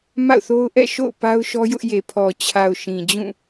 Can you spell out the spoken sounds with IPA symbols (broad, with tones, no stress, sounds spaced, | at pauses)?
m a̰˦˨ ʊ̯ θ o˦ ʊ̯ ʔ ɛ̰˦˨ ʃ o̰˦˨ ʊ̯ p a˦ ʊ̯ ʃ ɔ˦ j ʊ˦ ʔ j e˨ pʰ ɔ˨ t͡ɕʰ a˨ ʊ̯ ʃ ĩ˨ d͡ʑ ũ˦˨